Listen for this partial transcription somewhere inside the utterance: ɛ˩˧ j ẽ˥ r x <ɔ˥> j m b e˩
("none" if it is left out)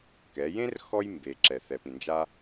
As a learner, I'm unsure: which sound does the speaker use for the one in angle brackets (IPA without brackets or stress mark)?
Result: ɔ˥